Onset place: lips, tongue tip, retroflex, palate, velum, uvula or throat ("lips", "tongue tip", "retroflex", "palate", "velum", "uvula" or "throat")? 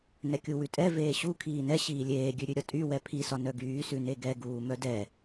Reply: tongue tip